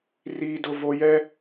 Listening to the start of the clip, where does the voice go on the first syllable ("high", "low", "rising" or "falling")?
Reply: high